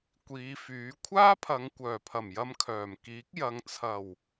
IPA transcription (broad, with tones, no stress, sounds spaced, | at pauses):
kʷ iː˨˧ f yː˨˥ kʷʰ aː˥ pʰ ɐ˨˧ ŋ kʷ œː˨˩ pʰ ɐ˨˩ m j ɐ˧ m kʰ œː˨˩ m k iː˨˥ k̚ j ɐ˨ ŋ t͡sʰ ɐ˨˩ w